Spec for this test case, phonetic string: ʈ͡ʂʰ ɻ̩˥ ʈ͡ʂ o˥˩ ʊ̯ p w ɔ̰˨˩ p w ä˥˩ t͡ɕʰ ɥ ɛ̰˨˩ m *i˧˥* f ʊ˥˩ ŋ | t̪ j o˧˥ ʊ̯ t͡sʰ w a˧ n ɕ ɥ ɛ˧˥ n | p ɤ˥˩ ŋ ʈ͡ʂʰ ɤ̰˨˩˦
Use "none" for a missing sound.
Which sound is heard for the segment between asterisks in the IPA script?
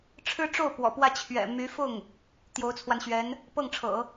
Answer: y˧˥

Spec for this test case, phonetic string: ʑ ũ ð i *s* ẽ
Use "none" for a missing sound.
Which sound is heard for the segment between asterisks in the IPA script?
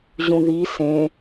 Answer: s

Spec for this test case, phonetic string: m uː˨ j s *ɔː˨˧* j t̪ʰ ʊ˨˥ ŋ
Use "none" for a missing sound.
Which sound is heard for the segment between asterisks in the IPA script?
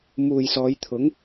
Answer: ɔː˨˧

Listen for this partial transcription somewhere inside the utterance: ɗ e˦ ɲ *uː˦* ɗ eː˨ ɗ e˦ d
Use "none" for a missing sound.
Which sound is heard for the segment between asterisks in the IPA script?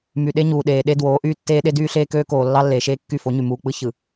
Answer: uː˨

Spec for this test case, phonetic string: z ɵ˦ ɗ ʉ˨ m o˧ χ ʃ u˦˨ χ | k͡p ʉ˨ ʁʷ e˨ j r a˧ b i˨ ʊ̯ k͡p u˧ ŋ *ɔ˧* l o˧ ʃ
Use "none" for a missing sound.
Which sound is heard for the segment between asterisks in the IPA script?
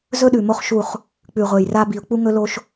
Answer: ɵ˧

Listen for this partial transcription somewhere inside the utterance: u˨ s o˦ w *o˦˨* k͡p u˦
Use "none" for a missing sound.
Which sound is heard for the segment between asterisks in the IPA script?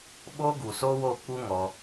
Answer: o˦˨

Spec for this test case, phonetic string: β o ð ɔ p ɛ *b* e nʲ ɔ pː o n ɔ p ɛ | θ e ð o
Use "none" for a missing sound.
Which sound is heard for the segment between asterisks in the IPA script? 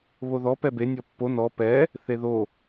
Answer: b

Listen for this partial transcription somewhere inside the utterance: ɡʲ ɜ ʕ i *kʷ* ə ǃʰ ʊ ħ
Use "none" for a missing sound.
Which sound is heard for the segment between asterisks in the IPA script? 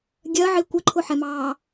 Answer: kʷ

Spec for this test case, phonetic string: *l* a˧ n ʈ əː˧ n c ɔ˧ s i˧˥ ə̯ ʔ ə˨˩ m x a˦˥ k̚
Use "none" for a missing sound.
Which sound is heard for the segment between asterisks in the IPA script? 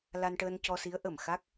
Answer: l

